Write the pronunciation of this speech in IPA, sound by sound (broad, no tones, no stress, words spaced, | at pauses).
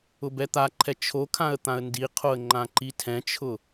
ʊbɛt̪aǃʰɛ t͡ʃʰokʰãə̯ t̪ãə̯ndiqʰoə̯ ŋ͡ǃãǃitʰɛ̃t͡ʃʰʊ